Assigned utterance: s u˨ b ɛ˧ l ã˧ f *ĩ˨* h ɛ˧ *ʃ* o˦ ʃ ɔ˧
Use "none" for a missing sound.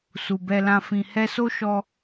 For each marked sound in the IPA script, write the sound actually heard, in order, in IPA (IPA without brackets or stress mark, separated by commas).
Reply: ĩ˨, s